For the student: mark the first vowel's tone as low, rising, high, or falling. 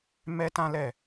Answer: high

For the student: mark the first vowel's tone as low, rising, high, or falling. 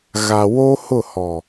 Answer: low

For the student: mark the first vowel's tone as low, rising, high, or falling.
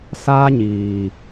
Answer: high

